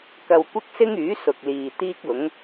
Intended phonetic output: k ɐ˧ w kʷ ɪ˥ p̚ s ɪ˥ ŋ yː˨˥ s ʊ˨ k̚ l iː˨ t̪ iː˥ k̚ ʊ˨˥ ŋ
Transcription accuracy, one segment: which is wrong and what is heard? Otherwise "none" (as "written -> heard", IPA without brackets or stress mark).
p̚ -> k̚